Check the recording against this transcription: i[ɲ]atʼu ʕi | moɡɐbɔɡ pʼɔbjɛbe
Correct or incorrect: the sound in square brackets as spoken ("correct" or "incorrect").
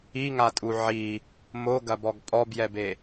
incorrect